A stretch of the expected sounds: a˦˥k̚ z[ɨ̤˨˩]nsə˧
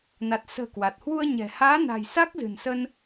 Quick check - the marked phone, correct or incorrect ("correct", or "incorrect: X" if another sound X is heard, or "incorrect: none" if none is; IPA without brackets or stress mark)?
correct